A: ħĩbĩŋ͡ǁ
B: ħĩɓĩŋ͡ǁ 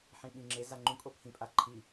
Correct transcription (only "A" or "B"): B